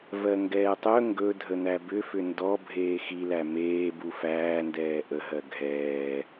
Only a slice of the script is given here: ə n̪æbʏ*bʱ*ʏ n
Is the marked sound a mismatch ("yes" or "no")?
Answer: yes